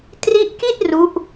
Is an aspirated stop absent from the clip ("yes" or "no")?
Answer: yes